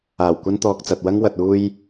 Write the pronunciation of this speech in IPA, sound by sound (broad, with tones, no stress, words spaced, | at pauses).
aː˨˩wkʷɐ˧nt̪ɔː˨k̚t͡sɐ˨t̚ wɐ˧ŋwɐ˨t̚uː˧j